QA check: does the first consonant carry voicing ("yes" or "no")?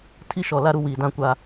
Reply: no